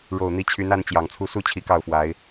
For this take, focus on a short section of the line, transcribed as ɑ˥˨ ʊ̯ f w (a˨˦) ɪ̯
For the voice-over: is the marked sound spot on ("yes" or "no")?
yes